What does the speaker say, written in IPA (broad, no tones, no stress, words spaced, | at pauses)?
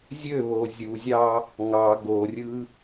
zʲøβo zʲuzʲɑ | ŋɑ ɡorʲɯ